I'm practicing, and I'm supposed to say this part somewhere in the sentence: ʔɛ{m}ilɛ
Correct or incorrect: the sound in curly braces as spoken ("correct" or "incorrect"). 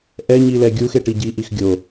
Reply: incorrect